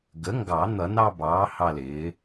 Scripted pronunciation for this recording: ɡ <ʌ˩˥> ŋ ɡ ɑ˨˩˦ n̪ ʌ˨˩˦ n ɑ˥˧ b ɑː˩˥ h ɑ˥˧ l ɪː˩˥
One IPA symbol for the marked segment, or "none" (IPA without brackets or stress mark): ə˩˥